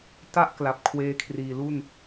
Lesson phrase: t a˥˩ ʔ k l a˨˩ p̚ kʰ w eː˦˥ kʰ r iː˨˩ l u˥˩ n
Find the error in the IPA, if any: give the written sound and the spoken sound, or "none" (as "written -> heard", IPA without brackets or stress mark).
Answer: none